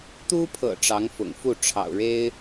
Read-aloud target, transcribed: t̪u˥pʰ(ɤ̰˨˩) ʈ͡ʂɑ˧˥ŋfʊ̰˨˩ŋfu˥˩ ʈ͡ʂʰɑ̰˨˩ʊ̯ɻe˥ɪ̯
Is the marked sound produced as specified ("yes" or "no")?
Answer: yes